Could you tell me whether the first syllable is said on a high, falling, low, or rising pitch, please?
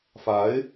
rising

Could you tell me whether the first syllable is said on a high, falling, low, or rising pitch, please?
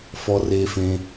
high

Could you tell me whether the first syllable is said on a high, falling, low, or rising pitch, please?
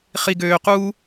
low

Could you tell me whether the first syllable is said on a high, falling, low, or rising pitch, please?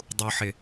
low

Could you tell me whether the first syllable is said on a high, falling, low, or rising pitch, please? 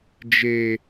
low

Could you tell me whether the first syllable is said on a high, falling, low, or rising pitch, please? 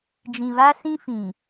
low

